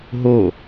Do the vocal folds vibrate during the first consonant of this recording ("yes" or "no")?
yes